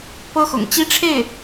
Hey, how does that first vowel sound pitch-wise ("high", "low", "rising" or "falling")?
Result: high